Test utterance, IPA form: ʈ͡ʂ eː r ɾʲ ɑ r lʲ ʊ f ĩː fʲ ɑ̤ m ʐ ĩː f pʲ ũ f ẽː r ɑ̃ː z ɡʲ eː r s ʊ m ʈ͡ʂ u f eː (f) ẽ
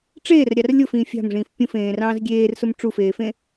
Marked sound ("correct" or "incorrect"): correct